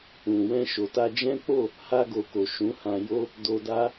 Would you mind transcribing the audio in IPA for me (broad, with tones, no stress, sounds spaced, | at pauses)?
ũ˨ w ɛ̃˧ ʃ o˨ t a˧ d͡ʒ ɛ̃˦ k͡p o˦˨ | h a˧ ɡ o˨ k o˨ ʃ ũ˨˦ h ã˧ j o˦ | d o˧ d a˦